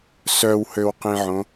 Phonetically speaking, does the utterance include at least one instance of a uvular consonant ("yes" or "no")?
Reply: yes